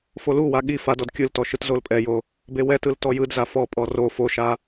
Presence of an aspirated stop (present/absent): absent